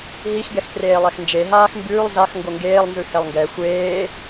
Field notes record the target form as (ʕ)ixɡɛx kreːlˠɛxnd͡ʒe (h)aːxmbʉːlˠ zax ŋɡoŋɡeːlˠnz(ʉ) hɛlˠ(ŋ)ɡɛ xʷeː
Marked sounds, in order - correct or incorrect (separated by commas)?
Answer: incorrect, incorrect, correct, correct